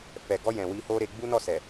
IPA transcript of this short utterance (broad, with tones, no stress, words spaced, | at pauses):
fɛ˨ɡɔ˧jɛ̃˨ wi˧ho˦ɾe˧ ɡ͡bu˦nɔ˦˨sɛ˨